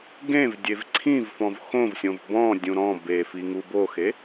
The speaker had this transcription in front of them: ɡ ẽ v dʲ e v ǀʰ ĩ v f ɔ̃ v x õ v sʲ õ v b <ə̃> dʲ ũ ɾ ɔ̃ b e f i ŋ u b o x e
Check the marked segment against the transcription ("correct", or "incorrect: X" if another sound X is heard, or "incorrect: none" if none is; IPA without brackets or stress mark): incorrect: ɔ̃